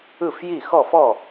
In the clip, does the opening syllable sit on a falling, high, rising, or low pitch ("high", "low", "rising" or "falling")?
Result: falling